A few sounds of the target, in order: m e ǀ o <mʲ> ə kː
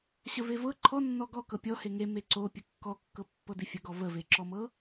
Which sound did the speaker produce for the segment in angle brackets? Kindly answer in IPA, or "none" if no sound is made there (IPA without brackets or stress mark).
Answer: pʲ